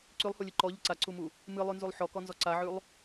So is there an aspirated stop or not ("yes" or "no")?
no